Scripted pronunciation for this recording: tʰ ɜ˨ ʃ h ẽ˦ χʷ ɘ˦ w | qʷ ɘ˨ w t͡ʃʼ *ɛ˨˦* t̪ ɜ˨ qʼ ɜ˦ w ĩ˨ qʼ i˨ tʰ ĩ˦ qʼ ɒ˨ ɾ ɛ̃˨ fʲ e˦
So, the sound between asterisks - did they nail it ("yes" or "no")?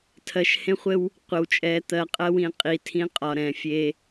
yes